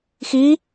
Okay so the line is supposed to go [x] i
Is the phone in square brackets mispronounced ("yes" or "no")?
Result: no